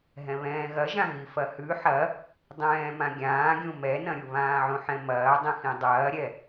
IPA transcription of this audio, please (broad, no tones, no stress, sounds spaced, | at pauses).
ɦ ɛ̃ β ɛ̃ː ɣ ɐ ʒ ã ɣ i f ɐ h ʉ ħ ɐ | dˤ ɛ̃ː m ã ɡʲ ãː ɡʲ ũ m ɛ n ɐ̃ ɾʲ u β ãː ʕ ũ ħ ɛ̃ m ɐː dˤ ĩ x ĩ dˤ ɐː ɾʲ ɛ